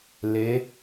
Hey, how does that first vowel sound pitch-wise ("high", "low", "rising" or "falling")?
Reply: rising